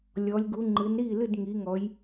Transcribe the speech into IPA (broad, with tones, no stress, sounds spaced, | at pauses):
lʲ ɔ˩˧ lʲ ɡ u˩˧ ŋ͡ǃ ɨ˩˧ n ɾ i˥˩ l ɨ˥˩ d ŋ i˩˧ ŋ ɔ˩˧ j